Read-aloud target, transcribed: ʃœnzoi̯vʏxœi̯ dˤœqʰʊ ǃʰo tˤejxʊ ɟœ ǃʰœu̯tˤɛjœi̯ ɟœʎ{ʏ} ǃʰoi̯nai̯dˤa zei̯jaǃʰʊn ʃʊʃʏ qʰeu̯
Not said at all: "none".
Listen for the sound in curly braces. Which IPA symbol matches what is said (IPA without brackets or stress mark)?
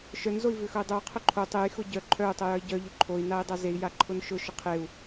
ʏ